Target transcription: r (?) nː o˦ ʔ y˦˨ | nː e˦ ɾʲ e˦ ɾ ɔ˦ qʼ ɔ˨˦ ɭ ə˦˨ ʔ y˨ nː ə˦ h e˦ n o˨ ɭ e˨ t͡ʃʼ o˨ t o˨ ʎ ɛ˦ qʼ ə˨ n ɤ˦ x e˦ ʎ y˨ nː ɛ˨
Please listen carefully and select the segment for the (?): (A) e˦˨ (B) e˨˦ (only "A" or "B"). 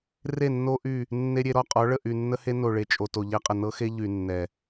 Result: A